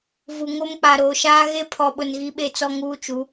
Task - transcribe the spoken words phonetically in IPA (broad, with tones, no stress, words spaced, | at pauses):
vu˨ŋo˦mk͡pa˨ ɾoː˨ʃaː˦ ɣe˦pʰɔ˨ɓʊ˨n ɣi˦ɓe˦t͡sɔ˦ ŋuː˦t͡ʃu˨˦